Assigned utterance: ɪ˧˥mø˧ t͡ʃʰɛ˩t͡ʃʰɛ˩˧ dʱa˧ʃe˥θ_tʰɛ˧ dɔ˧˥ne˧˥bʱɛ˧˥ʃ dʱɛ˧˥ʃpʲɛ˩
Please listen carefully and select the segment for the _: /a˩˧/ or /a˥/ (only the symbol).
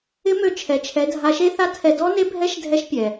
a˥